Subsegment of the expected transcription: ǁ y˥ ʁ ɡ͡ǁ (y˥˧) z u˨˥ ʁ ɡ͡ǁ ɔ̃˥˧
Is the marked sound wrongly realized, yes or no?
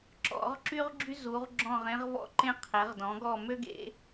yes